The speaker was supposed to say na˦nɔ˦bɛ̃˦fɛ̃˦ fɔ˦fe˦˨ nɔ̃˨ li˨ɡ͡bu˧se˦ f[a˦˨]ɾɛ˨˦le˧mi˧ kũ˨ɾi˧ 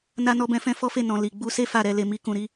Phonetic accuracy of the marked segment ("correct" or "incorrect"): correct